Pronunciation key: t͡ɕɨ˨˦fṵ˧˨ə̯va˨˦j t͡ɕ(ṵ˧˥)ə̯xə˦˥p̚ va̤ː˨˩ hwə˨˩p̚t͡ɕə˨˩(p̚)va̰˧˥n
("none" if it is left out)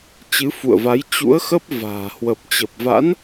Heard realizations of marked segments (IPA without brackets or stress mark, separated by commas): ṵ˧˥, p̚